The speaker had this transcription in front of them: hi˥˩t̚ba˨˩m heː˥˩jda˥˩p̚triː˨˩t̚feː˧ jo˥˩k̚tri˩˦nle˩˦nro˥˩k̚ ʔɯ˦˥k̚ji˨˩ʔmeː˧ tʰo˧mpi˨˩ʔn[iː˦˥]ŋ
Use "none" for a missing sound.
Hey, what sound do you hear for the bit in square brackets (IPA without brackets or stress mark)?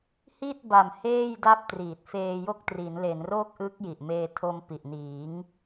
iː˩˦